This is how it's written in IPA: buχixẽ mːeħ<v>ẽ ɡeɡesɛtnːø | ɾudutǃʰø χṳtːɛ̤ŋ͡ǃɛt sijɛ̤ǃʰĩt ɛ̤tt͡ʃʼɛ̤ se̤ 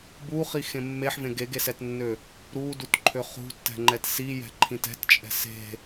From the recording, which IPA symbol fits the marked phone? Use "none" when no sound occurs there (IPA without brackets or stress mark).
v